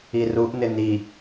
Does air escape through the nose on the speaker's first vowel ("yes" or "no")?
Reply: no